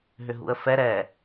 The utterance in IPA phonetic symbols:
ɦ ʏ ɦ ṵ ə̯ f ɛ ɾ ɛ

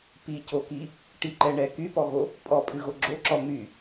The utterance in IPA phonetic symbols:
p i c o k i | ʈ i ǃ ɛ ɳ ɛ k y p ɔ ɣ o | pʼ ɔ pʼ ʉ ɣ o ɡ͡ǁ o ǁ ɔ n̪ y

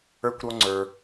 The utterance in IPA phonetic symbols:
ə˞˥ kʷ ɾ ɔ˥ ŋ͡ǀ ə˞˧

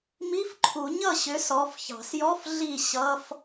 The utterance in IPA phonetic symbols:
m i˧˥˧ f ǃʰ u˨˩˦ ɲ ʌ˥˩ ɕ ʏ˨˥ s ɔ˩˧˩ f ç ɑ̤˨˩˦ s j ɔ˧˥˧ f ɮ i˥˩ ɕ ʌ˧˥˧ f

